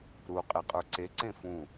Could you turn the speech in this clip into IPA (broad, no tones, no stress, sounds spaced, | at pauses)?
ɾ u qʼ e qʼ ə˞ ǀ e ǀ ẽ f ũ